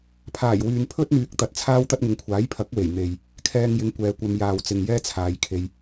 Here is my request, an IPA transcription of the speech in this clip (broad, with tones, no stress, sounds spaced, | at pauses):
pʰ aː˨˩ j w yː˨ n pʰ ɵ˥ t̚ n̪ yː˨ k̚ t̪ ɐ˨˥ t̚ t͡sʰ aː˥ w t̪ ɐ˥ t̚ ŋ ɪ˨˧ ŋ kʷʰ aː˨˥ j pʰ ɐ˨˥ k̚ w e˨˩ j n̪ e˨ j | kʰ ɛː˧ ŋ j ɪ˨˥ ŋ kʷ ɛː˨˧ kʷ ɐ˧ m j aː˨ w t͡s ɪ˨ ŋ j ɛː˥ t͡sʰ aː˨˧ j kʰ e˧ j